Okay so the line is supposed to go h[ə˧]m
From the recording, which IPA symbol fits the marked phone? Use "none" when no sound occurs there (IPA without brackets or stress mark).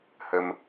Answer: ə˧